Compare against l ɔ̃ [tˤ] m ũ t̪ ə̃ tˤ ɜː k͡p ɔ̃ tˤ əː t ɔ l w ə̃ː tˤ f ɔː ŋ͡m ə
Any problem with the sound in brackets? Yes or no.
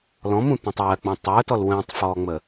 yes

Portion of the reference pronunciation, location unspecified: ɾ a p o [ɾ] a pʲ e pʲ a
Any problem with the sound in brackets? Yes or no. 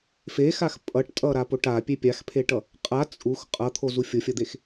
yes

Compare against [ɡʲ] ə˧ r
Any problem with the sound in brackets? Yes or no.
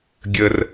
no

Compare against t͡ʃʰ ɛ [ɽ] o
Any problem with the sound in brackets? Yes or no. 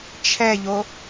yes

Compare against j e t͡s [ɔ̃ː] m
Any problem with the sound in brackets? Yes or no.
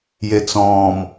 no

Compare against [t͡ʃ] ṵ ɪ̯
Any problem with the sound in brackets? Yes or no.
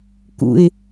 yes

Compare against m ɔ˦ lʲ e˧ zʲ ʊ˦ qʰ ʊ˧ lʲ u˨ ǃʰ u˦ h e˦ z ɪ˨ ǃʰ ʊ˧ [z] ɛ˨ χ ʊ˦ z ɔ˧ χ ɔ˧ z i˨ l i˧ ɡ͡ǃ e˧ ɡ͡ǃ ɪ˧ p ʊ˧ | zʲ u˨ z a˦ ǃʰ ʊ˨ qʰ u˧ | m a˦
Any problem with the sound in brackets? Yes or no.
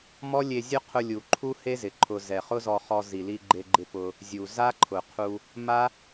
no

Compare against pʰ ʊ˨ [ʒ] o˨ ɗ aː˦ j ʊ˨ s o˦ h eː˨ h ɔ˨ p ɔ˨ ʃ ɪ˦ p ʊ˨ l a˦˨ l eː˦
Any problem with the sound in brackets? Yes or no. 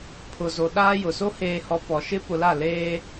yes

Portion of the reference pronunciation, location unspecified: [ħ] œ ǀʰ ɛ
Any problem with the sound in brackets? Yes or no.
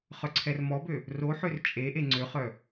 yes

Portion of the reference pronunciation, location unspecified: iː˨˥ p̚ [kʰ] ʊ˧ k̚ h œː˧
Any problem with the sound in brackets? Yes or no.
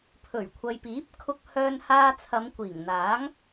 no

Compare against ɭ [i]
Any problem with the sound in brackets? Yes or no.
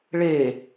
yes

